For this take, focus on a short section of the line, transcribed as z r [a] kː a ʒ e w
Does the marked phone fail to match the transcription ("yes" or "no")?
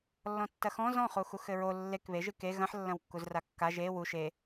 no